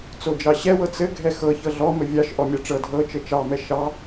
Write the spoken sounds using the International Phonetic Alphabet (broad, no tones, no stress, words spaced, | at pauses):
t͡sod͡ʒɑɕɛwɤ t͡sɘ ɡʱɛxɤ çɤɮɔmɘ vʲɑʃ ʔɔmʲɑʈ͡ʂɤ dʱɤ t͡ʃɘt͡ʃɑmɛ ʃɑ